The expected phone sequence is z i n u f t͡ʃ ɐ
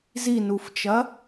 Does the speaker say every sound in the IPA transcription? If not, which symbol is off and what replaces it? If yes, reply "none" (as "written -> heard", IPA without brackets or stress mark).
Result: none